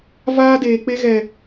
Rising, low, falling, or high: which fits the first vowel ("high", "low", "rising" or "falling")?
high